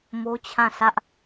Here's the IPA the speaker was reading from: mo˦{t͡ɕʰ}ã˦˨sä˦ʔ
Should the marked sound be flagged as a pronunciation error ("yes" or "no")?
no